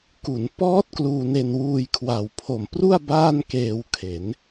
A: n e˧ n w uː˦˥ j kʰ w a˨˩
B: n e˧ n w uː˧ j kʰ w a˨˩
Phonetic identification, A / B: B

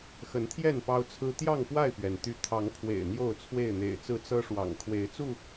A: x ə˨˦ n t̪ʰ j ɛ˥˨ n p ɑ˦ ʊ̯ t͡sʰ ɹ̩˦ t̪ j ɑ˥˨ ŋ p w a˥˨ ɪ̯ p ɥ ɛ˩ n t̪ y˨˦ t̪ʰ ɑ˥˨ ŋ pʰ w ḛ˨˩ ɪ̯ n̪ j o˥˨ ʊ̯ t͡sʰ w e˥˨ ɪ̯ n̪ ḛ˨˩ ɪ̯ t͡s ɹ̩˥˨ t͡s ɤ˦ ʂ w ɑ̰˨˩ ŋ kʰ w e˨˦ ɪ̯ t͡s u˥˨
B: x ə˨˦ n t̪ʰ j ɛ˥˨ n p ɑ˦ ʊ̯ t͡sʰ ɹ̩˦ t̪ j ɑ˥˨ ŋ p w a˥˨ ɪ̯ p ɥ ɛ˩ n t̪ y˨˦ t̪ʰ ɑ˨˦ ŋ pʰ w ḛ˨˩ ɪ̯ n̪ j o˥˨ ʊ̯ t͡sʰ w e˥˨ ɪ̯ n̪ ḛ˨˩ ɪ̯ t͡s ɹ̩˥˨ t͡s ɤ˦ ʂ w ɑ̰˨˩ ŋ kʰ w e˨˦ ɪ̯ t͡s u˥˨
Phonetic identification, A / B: B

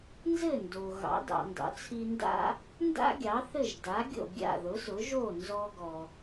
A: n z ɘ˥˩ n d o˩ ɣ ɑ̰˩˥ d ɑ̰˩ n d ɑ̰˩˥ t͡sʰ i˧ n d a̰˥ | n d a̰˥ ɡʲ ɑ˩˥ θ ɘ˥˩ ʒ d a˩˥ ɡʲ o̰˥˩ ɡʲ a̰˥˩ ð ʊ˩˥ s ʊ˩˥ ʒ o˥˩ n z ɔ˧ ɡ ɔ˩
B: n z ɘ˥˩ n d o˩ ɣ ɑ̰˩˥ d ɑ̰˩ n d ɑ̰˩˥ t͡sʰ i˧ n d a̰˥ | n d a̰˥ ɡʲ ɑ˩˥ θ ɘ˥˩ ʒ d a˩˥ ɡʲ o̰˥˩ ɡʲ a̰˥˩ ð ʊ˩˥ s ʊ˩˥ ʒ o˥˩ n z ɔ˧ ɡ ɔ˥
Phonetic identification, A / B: A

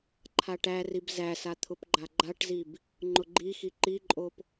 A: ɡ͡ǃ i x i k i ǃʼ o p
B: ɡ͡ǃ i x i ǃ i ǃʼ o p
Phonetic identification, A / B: B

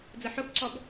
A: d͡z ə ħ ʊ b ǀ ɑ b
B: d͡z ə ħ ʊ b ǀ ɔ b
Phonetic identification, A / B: B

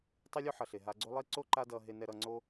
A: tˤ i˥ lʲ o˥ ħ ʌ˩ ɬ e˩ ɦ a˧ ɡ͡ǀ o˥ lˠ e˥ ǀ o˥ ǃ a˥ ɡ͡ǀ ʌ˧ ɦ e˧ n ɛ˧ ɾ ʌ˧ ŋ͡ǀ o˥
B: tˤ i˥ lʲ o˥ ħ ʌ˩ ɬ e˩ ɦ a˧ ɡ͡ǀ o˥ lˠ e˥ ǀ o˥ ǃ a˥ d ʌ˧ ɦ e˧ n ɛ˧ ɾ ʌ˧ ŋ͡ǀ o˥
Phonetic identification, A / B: B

